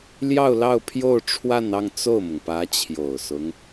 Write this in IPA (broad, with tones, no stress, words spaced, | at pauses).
ljɑ˥˧ʊ̯lɑ˥˧ʊ̯ pʰjo˥˧ʊ̯ʈ͡ʂʰwa˥˧nɑ˥˧ŋ t͡so˥˩ʊ̯mʊ˩ŋpä˧˥ t͡ɕʰjo˨˩ʊ̯sʊ˦ŋ